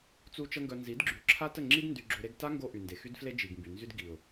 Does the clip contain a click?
yes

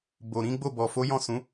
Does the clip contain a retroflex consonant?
no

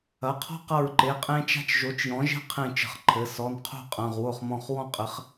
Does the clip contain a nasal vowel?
yes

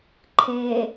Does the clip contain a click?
yes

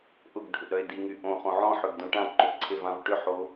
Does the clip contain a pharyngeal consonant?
yes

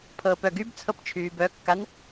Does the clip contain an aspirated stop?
yes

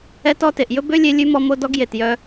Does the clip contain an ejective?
no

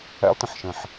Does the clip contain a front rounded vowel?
no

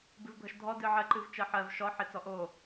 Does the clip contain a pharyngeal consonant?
yes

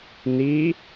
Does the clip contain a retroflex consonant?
no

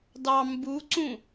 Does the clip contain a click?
yes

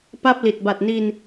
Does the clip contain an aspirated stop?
no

